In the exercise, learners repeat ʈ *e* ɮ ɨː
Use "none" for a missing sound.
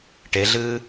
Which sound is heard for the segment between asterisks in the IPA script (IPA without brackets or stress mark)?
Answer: e